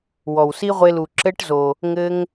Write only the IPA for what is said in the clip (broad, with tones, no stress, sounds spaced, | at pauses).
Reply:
w ɔ˨ w s i˦ ʁʷ e˧ l u˨ ǁ ɘ˦ ʈ z o˨ | ŋ ɘ˧ ŋ